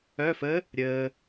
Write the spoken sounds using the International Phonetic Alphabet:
œ fə | ɾʲəː

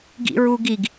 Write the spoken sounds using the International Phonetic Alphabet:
ɡḭɹuɡiɡ

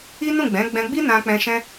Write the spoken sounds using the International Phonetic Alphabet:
i˦nũ˦˨ɡ͡bɛ̃˨˦ ɡ͡bɛ̃˧ɡ͡bi˦ nã˧k͡pɛ̃˧ ʃɛ̃˦

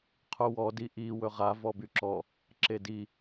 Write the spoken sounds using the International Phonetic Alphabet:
qʰuwɔ diʔi wɵʁa vɔbyǁɔ | ǁedi

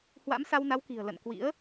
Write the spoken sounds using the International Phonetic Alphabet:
hwa̰˧˥msa˧wna˨˦wki̤˨˩ə̯ lə̰˧˨nkwḭ˧˥ə̯

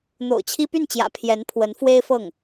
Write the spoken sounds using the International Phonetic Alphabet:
n̪o̰˨˩ʊ̯t͡ɕʰi˥ py˥˩nt͡ɕjä̰˨˩ pʰjɛ˧˥npʰwə˧˥n fwe˥ɪ̯fɤ˥˩ŋ

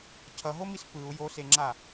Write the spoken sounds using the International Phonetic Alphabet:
cʰʌɦomis pɯu̯ joseŋ͡ǁa

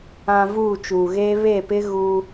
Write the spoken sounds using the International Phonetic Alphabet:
ã˨ vuː˦˨t͡ʃuː˨ɣeː˦ βe˦˨pɪ˦ɣu˦

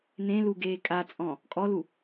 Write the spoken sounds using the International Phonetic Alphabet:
nẽ lu ɡeːkʼat͡sʼɔ̃ | kʼɔlu

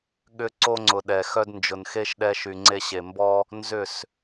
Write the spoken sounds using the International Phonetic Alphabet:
ɠʏ˦ ǀo˦ŋ͡ǀʊ˨ ɗɛ˨xœ˦d nd͡ʒʊ˨nxe˦ʃ ɗɛ˦ʃy˨ŋ͡ǀe˦ɕe˨ mbɔ˦ | nzʏ˦˨s

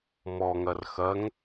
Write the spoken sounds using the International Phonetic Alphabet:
mɔŋɐr xɐŋ

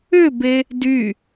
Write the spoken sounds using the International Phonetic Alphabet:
ʏbe | dy

